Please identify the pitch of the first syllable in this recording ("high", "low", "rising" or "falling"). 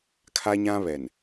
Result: high